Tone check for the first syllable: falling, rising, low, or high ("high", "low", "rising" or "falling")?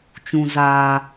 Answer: low